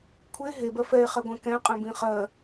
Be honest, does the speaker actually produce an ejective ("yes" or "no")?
yes